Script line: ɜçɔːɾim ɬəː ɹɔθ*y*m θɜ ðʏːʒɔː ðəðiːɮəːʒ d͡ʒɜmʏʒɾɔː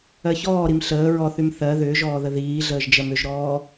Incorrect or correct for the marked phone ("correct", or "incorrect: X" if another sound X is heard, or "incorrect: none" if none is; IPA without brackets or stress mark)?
correct